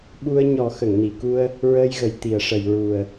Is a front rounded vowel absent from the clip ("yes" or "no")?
yes